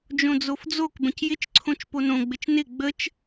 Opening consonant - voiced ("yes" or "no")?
yes